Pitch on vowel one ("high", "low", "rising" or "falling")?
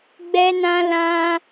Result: high